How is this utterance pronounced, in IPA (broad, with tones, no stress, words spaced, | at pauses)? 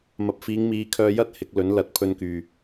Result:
mɐ˨p̚fiː˨˧ŋmiː˨˧kʰœː˧ jɐ˥t̚ hɪ˨˥k̚lɵ˨˥nlɐ˨˥t̚ pʰɵ˧nkyː˨